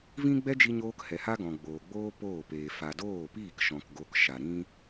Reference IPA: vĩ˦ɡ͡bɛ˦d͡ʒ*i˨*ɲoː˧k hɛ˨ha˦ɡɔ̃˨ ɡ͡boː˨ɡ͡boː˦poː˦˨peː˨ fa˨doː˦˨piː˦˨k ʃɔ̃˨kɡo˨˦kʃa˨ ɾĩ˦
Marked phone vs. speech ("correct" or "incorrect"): incorrect